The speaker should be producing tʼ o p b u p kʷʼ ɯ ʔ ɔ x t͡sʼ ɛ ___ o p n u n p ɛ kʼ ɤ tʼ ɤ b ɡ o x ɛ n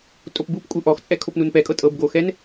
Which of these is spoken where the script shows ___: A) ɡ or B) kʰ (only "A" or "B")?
B